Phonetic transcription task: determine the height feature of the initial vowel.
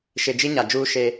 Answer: high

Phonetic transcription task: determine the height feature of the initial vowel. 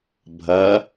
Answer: low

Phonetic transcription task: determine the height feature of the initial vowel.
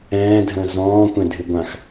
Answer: mid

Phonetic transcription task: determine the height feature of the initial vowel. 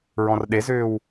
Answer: mid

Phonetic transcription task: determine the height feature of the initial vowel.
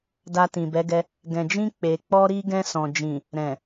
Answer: low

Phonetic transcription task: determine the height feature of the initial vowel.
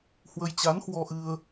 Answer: mid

